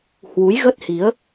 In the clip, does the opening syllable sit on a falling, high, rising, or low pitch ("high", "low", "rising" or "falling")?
rising